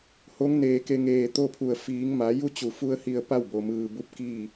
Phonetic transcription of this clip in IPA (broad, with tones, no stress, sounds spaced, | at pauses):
h o˧˥ ŋ n eː˧˩ k e˧ ŋ eː˧˩ t̪ o˥˨ pʰ u˧˩ ə̯ f iː˩˧ ŋ m a˩˧ j u˥˨ t͡ɕ u˩˧ f u˧ ə̯ h i˧ ə̯ p a˥˨ w b o˩ m ɯː˩ b u˧˥ p̚ k iː˥˨